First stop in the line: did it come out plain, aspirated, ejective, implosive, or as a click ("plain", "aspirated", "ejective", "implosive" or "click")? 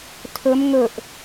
aspirated